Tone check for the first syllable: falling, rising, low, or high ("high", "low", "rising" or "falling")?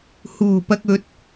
low